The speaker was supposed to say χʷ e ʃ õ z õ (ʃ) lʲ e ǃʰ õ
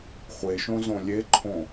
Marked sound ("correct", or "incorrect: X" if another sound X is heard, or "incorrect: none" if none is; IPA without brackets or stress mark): incorrect: none